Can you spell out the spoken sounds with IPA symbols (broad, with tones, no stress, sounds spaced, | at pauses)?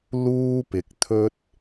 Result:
l uː˥ p ɪ˨ k̚ t̪ʰ ɵ˥ t̚